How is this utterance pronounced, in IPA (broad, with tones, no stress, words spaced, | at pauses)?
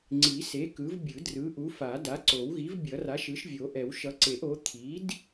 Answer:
ŋ͡ǀi˨˩˦se˩˥ kɯ˩˥vbʲɯ˨˩˦ drɯ˩˥ʔu˩˥fa˨˩˦ da˩˥ǀo˨˩˦wɣi˩˥v bʲʌ˨˩˦r a˩˥ʃɯ˩˥ʃvʲo˨˩˦ʔɛ˨˩˦w ʃʌ˩˥ǀe˨˩˦ʔ o˩˥ t̪ʰi˩˥d